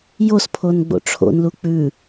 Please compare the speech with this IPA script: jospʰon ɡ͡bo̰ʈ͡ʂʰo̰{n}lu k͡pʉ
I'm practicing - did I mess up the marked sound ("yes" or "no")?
no